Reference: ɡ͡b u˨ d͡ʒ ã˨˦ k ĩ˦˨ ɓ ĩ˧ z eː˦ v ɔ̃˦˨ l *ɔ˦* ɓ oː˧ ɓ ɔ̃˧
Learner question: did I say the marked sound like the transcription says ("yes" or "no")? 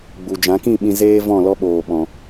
yes